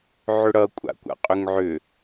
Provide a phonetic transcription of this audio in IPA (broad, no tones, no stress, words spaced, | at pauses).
ʕʏɽʌ kʷʼa̰kʷa̰qʼʏŋʕʏ